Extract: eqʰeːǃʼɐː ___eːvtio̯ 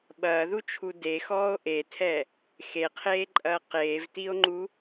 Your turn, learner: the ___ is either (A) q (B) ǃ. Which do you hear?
A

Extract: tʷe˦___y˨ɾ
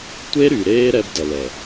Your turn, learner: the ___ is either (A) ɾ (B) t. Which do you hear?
A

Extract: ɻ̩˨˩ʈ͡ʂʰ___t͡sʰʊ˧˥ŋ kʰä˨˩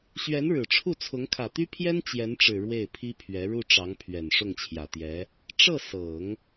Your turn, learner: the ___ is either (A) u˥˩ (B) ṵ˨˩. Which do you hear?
A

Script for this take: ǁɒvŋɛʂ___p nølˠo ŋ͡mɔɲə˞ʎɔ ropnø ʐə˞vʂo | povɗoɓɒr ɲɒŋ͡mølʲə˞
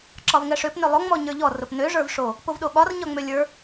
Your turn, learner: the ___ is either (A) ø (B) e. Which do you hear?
A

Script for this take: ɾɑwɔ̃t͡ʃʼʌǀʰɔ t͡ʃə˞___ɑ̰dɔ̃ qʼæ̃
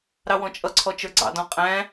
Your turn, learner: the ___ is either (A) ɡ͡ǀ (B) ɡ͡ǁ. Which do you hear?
A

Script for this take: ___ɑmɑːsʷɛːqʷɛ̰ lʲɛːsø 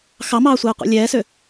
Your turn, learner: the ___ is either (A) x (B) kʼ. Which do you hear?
A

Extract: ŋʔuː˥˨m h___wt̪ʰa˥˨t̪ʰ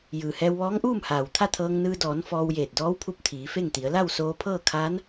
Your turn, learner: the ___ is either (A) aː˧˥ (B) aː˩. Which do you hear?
B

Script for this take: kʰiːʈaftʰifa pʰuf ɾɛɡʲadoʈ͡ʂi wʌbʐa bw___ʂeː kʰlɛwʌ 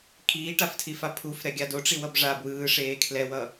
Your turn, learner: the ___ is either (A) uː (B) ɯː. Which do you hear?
B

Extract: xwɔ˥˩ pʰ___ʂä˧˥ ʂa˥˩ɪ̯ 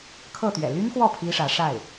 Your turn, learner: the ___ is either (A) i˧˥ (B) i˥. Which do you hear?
B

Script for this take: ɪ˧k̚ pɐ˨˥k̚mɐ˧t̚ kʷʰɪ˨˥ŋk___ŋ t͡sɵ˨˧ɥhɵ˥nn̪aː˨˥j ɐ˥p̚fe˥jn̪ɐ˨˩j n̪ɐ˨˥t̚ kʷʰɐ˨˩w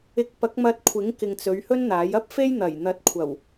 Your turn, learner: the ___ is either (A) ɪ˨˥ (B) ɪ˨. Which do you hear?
B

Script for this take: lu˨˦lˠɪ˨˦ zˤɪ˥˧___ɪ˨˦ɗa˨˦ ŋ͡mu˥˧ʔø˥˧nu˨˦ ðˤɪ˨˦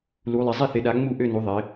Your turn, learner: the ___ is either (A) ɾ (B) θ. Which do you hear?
B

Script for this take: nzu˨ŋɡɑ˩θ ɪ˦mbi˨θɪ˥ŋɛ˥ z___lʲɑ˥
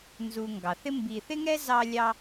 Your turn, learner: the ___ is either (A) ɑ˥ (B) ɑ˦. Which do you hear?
A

